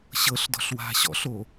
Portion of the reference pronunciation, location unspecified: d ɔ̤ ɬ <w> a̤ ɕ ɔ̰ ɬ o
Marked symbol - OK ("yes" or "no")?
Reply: yes